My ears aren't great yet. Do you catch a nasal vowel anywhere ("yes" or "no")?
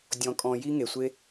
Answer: yes